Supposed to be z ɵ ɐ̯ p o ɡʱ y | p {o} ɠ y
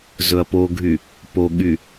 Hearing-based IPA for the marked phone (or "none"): o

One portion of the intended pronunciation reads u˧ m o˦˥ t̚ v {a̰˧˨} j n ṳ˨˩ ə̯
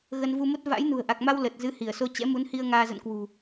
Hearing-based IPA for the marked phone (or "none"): a̰˧˥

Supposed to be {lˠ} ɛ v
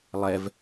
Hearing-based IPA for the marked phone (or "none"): lˠ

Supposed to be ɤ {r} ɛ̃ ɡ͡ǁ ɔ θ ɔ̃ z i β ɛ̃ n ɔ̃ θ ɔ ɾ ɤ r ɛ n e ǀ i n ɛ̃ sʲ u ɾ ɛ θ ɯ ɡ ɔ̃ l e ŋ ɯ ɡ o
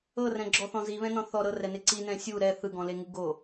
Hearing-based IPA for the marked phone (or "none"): r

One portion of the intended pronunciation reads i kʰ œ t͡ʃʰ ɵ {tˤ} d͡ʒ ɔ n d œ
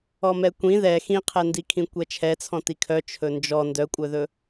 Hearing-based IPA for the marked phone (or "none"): n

